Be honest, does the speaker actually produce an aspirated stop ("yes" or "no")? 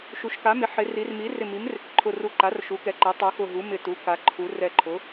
yes